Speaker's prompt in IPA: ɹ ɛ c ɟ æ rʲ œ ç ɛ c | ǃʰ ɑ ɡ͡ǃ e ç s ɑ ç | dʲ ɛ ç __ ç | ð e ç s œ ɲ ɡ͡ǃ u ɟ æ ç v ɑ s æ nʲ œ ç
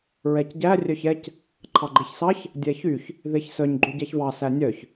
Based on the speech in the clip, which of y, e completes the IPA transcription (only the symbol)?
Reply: y